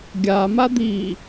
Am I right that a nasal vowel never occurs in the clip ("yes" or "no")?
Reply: yes